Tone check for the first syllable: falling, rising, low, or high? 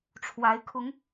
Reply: rising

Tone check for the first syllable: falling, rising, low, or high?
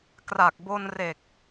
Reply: low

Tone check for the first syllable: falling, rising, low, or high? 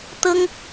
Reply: high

